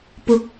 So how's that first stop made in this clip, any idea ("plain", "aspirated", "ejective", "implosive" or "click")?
plain